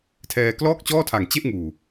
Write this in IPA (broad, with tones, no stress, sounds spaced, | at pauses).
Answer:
tʰ ɛː˧ k l ɔː˥˩ k̚ t͡ɕ ɔː˥˩ tʰ a˨˩ ŋ t͡ɕ e˥˩ ʔ ŋ uː˨˩